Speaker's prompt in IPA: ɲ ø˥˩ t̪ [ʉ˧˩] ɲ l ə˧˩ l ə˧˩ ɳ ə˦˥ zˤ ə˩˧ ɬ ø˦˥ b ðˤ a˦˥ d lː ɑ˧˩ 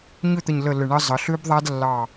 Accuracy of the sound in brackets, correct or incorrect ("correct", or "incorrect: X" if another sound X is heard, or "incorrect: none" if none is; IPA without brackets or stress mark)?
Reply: incorrect: ə˧˩